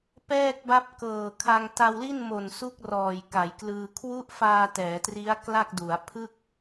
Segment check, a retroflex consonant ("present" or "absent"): absent